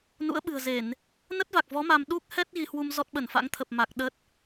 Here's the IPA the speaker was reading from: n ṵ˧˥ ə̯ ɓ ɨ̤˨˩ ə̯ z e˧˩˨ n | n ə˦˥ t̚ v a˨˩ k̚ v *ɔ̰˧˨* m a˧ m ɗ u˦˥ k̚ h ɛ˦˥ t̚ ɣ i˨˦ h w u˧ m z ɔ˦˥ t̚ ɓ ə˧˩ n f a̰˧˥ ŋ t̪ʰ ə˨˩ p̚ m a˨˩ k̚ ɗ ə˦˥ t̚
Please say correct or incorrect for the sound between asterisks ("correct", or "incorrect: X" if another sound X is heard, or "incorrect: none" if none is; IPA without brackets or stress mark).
incorrect: ɔ˨˦